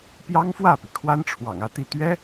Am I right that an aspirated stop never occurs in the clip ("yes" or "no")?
no